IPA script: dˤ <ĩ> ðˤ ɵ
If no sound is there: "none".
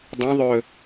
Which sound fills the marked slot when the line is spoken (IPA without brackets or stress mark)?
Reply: ĩ